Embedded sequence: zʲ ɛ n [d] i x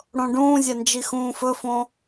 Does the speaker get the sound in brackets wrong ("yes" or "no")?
yes